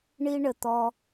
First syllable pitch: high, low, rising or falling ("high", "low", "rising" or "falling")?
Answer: high